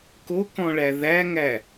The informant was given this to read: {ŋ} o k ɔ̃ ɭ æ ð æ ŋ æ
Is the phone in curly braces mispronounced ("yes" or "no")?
yes